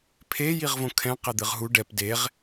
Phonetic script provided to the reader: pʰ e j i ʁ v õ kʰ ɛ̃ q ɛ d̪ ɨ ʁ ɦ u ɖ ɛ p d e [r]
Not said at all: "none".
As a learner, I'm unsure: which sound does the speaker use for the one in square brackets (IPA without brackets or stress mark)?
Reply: ʁ